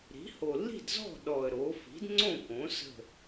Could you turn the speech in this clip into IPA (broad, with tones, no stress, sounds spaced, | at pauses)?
ɾ i̤˩˥ h o˨˩ lː i̤˥˨ d z ɔ̤˥˨ ɗ ɔ˨˩ ə̯ ɾ o˩˥ f i̤˩˥ d ŋ͡ǀ õ˥˨ k õ˩˥ s ə̤˥˨